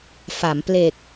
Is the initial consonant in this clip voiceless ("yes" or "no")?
yes